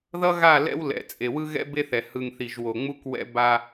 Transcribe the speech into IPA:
ð ʌ˦ ɣ a˦˨ l ɛ̰˦ w l ɛ̰˨ t͡sʼ e˨ w ɯ˦ ɣ ɛ̰˦ b e˦ θ ɛ˨ h ɯ˨ ŋ θ i˨ ʒ w o˨ ŋ͡m u˦ k w ɛ̰˦ b a˦

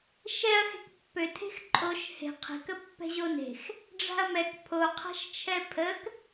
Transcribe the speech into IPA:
ʃ ɛ ɐ̯ x e̤ k pː ø tʰ e̤ x ǃʼ o ʃ h e̤ qʰ ɛ̤ k ə pː ɛ̤ ʑ o n e̤ x | ɖ͡ʐ a̤ ɐ̯ m ɛ k pʰ o qʰ a̤ ʃ t͡ʃʰ ɛ pʰ ə k

